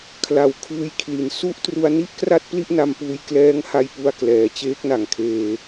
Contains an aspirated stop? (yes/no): yes